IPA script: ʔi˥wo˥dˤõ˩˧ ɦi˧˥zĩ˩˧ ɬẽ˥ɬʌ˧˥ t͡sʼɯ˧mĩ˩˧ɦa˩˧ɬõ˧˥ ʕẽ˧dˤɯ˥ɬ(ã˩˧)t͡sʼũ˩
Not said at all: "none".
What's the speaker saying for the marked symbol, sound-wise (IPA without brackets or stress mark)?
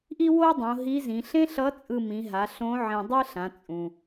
ã˩˧